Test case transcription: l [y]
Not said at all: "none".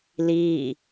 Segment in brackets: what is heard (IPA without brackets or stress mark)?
i